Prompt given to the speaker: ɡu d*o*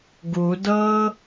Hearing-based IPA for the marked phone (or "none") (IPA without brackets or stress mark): ɤ